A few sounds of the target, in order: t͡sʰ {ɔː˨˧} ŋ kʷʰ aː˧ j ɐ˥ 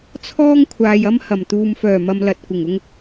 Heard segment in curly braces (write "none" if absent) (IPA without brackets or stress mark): ɔː˥